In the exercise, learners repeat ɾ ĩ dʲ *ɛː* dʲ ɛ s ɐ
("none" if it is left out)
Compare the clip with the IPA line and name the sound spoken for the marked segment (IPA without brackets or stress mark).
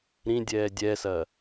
ɛː